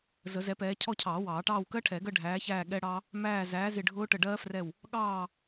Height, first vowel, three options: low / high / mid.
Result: mid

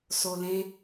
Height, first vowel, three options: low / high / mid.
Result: mid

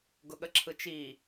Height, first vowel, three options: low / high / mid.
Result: high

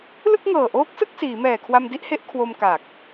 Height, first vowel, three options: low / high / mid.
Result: high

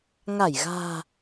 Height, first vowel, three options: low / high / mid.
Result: low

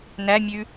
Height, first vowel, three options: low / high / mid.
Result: low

